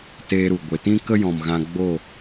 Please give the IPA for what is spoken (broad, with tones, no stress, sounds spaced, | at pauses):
t eː˧ ɾ u˨ ɡʷ e˨ t ĩ˦ k ə˦ j ɔ̃˨ m ɣ ã˧ ɡ͡b o˦˨